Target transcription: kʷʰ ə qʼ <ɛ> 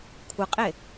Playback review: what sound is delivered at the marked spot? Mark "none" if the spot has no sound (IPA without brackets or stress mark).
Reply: e